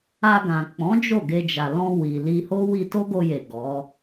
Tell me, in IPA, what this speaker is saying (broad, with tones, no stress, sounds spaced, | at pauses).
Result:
a˧ ɡ ã˨ k͡p ɔ̃˨˦ d͡ʒ o˦˨ ɡ e˧ d͡ʒ a˨ l ɔ̃˧ w i˨ l i˧ h o˦ w i˧ t o˦ ɡ o˧ j e˨ ɡ ɔ˨˦